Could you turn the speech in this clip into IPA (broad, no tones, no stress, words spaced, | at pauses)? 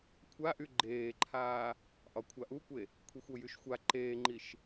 kʷʰaʔy ɡ͡ǃeːǃʰaː | ʔɒkʷʰaʔukʷe | kʷʰixʷojyʃxʷa ǃeːŋ͡ǃiʃ